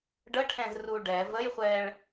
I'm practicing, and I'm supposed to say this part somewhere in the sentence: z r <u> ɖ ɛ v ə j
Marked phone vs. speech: correct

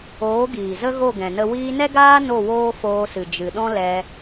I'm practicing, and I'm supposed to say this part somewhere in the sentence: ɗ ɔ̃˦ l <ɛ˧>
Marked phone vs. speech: correct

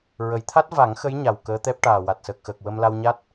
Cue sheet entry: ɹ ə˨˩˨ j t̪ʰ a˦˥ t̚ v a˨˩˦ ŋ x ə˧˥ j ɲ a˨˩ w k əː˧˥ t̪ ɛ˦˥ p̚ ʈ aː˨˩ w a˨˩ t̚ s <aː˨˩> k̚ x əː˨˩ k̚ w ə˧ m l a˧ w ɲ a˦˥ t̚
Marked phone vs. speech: incorrect: əː˨˩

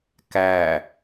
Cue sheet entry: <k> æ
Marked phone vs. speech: correct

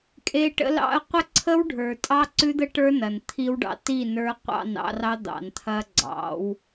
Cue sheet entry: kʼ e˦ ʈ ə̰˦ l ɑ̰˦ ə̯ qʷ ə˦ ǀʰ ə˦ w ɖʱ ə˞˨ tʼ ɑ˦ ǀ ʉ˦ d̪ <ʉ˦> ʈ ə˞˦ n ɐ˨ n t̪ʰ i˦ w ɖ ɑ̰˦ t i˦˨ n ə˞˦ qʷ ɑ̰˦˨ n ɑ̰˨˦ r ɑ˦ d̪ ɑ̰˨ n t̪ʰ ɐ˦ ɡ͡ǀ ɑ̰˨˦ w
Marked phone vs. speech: incorrect: ə˦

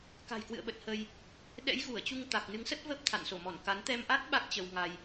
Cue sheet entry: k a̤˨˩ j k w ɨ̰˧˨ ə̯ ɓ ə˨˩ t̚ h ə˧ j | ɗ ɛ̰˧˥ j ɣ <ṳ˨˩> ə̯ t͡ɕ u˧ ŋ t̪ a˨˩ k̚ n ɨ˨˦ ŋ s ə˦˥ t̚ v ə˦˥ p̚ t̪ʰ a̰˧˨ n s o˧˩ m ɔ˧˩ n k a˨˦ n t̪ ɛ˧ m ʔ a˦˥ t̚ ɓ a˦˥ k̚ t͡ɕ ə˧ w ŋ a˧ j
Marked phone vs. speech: incorrect: u˧˩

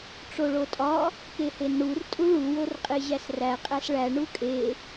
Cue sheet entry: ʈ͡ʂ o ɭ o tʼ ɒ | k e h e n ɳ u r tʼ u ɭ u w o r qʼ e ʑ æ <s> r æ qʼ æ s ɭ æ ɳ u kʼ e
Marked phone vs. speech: correct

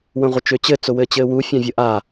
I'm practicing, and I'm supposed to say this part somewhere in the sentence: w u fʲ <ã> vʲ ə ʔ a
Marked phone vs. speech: correct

